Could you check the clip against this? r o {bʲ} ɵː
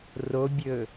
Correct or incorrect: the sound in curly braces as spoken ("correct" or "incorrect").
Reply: correct